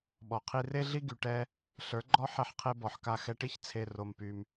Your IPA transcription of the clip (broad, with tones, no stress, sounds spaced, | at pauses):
ɓ ɔ˨ qʰ i˧ r e˦ ɮ i˦ ɡ y˧ ʈ ɛ˦ | ɬ ə˞˨˦ ɡ͡ǃ ɔ˦ ħ ɛ˧ ħ qʰ e˧ b ɔ˨ ħ k a˧ x ɛ˧ ʈ i˦ ç t͡sʰ e˧ r o˧ m p y˧ m